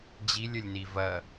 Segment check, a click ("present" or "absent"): absent